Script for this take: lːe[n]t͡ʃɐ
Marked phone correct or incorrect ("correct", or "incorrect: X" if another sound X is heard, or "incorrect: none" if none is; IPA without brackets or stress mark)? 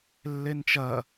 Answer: correct